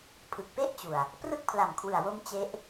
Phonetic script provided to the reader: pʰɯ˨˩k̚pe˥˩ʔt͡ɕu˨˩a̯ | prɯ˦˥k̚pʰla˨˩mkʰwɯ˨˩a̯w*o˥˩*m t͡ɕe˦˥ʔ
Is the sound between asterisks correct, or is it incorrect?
incorrect